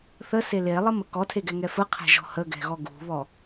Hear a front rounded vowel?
no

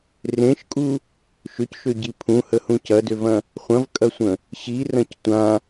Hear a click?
no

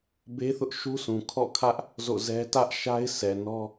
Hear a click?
no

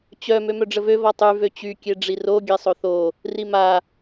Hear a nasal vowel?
no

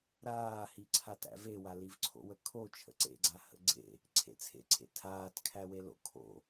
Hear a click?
yes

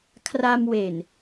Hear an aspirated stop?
yes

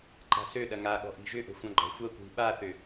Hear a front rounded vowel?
yes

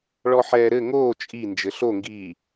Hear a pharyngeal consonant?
yes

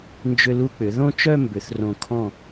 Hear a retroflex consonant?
no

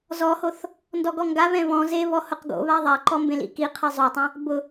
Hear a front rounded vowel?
no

